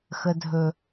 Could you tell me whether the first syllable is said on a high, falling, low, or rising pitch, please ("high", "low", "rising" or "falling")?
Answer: high